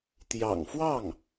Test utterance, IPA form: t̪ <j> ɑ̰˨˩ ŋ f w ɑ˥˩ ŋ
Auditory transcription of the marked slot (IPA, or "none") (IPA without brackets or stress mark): j